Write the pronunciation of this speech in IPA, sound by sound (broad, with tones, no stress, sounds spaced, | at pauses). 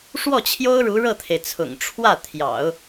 ʂ w ɔ˥˩ t͡ɕʰ j o˥ ʊ̯ ɻ u˧˥ ɻ ɤ˥˩ t̪ʰ e˩ ɪ̯ t͡sʰ ʊ̰˨˩ ŋ ʈ͡ʂʰ w ä˥˩ t̪ʰ j ɑ̰˨˩˦ ʊ̯